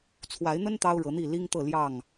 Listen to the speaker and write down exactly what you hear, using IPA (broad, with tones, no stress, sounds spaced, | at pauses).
t͡sʰ w a˨˦ ɪ̯ n̪ ə˦ n t̪ ɑ˦ ʊ̯ ɻ ɤ˨˦ n̪ i˥˨ l i˦ ŋ t̪ ɤ˥˨ l j ɑ˥˨ ŋ